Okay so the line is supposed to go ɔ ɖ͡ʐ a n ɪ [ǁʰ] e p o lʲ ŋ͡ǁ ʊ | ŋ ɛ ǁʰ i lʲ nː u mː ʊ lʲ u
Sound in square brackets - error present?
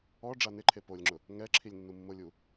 yes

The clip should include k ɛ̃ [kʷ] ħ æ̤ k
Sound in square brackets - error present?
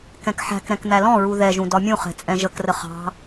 yes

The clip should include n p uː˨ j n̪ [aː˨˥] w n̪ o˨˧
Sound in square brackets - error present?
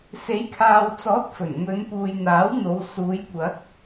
no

